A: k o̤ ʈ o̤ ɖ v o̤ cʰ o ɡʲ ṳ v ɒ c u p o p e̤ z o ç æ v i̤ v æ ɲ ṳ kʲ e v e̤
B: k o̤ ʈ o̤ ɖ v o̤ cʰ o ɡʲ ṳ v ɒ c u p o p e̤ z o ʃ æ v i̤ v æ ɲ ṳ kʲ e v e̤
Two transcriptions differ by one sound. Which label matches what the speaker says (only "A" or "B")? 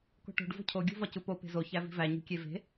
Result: A